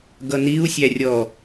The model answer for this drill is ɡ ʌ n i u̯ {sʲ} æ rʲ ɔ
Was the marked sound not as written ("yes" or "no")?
no